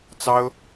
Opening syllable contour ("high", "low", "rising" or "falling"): high